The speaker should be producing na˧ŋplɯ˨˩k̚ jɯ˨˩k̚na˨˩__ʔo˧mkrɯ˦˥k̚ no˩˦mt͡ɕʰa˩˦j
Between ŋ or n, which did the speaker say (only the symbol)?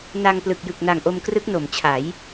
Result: ŋ